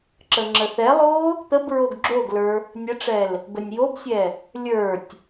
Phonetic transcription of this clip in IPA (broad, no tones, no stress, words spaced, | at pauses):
ǁəŋ͡ǁəθɛlˠo | t̪əb ɹoɡɡ͡ǁoɡlə˞ | nʲəʈ͡ʂɛl | bənʲjobsʲɛ | lʲə˞tʲ